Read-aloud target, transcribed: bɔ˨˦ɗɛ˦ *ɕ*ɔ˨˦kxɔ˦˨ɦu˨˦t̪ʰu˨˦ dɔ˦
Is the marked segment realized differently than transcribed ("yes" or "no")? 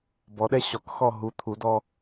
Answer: no